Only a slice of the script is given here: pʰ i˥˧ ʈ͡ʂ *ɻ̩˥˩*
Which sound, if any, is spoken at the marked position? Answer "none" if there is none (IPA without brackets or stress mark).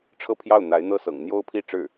ɻ̩˥˩